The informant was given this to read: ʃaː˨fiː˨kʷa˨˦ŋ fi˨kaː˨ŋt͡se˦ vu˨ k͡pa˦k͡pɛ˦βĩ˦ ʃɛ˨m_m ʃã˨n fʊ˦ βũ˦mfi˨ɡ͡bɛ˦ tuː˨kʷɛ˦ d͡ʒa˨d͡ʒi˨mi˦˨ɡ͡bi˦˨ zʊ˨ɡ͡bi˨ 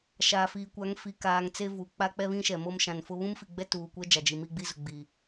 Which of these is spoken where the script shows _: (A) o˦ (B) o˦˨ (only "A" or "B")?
A